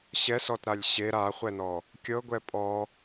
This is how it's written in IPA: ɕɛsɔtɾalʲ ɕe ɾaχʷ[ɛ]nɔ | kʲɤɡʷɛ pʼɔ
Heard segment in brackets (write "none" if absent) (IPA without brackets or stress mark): ɛ